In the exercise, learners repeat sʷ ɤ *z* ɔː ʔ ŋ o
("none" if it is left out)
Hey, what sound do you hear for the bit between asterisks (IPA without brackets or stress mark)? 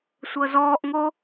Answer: z